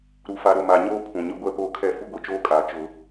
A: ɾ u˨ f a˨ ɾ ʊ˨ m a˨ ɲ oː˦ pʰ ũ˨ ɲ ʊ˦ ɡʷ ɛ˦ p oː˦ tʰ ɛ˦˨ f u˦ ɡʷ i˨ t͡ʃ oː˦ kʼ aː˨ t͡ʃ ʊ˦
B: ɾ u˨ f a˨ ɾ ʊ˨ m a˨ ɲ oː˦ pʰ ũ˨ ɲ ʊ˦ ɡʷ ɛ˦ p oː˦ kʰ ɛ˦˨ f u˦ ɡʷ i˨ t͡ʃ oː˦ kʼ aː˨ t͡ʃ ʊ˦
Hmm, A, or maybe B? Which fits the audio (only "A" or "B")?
B